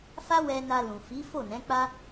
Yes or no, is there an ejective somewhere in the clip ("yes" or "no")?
no